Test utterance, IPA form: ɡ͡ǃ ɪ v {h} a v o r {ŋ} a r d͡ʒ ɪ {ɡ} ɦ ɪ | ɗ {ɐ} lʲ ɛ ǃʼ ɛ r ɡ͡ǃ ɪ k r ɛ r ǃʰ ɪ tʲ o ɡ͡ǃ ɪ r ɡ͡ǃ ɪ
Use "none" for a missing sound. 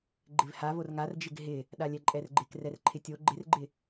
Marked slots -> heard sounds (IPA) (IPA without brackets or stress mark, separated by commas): h, ŋ, ɡ, a